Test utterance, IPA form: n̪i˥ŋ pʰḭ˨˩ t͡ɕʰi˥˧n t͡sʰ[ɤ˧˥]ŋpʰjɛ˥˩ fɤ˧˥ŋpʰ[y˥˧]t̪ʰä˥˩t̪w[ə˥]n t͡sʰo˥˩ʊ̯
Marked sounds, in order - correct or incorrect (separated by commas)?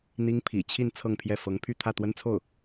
incorrect, correct, correct